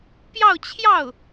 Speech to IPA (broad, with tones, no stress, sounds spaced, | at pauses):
p j ɑ˥˧ ʊ̯ t͡ɕʰ j ɑ˥˩ ʊ̯